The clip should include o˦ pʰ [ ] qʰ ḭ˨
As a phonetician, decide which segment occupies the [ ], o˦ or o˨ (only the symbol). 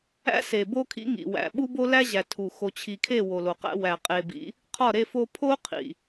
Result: o˦